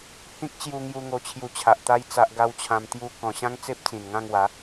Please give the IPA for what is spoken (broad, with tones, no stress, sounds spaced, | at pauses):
h ĩ˦ k̚ t͡ɕ j u˧ ŋ j u˧ ŋ o˧ t͡ɕʰ j u˧ t͡ɕʰ a˨ ʔ t̪ a˦ j t͡s a˦ ʔ ɡ a˦ w t͡ɕʰ ã˧ m t̪ j u˧ k ɔ̃˨˩ ɕ ã˦ ŋ t͡s e˦ p̚ t͡s ĩ˨˩ n ŋ ã˥˧ ŋ w a˨˦